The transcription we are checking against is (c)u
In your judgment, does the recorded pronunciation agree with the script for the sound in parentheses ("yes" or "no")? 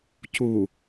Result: yes